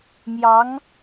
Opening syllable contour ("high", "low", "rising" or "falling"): rising